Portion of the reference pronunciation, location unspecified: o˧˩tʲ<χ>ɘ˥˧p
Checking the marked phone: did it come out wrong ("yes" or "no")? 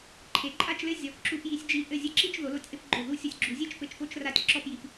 yes